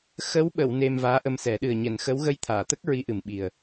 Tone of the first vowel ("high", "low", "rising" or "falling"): rising